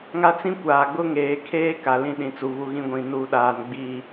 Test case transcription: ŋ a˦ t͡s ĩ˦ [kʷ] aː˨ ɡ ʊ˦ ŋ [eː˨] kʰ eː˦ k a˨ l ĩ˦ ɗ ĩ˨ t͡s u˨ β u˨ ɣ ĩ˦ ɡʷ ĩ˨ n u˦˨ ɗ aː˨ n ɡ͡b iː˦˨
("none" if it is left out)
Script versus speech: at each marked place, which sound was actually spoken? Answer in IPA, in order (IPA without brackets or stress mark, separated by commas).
kʷ, eː˨